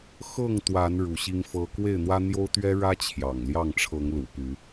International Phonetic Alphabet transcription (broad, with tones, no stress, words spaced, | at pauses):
xɤ˥˨ŋt̪wa˨˦n ɻu˨˦ɕi˦ŋfɤ˦ kwe˥˨ɪ̯n̪wä˦n̪jo˦ʊ̯t̪ɥɛ˦ ɻä˦ t͡ɕʰjɑ̰˨˩ŋljɑ˥˨ŋ ʈ͡ʂʰɤ˨˦ŋlṵ˨˩py˨˦